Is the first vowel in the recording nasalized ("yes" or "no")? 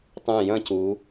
yes